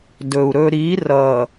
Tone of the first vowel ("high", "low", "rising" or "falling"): low